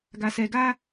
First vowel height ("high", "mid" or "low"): low